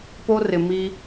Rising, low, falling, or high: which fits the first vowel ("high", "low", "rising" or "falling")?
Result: high